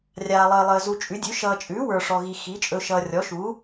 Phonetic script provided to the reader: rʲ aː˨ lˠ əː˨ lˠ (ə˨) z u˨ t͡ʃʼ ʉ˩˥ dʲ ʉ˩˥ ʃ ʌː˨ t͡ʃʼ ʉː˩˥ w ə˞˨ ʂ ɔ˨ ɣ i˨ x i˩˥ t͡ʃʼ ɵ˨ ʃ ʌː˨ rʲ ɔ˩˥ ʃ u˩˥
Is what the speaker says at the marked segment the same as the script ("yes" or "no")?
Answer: no